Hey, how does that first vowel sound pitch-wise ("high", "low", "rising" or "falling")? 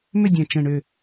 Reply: falling